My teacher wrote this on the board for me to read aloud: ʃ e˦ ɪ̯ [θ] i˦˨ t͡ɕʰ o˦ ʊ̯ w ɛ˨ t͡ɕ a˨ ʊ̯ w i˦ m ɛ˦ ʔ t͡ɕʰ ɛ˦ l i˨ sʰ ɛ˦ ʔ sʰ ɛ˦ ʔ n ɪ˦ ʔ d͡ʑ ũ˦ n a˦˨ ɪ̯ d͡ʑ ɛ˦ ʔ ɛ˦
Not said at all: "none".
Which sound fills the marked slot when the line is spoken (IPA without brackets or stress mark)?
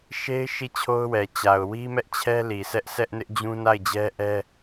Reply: ʃ